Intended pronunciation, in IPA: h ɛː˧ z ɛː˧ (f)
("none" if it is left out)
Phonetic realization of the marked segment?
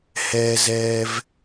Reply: v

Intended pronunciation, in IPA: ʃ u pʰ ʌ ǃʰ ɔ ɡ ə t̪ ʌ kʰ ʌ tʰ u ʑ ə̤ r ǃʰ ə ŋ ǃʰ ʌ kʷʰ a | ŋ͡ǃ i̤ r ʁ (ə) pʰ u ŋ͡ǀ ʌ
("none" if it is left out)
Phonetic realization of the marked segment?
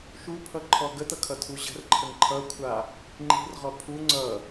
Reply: ɔ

